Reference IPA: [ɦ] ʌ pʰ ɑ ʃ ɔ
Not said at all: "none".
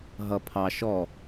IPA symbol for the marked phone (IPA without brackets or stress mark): ɦ